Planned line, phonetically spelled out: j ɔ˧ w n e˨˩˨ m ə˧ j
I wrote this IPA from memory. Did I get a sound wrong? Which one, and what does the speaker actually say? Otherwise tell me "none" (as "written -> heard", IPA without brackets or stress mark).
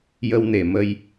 ɔ˧ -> ə˧